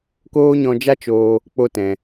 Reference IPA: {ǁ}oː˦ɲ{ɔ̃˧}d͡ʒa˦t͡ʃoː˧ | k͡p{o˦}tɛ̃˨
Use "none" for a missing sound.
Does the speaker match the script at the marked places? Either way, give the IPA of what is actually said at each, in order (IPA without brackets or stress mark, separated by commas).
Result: k, ɔ̃˧, o˧